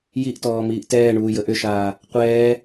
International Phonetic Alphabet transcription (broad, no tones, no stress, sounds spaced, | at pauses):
j i ʔ t ɔː m iː ʔ t ɛː ɳ uː j ə ʔ ʏ ʃ aː | qʷ ɛː